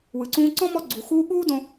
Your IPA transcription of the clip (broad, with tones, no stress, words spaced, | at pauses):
wɯ˩ǀũː˧ǀɔ̃˥ mɔ˧ɡ͡ǀu˩xuː˧ ɠuː˥dõ˧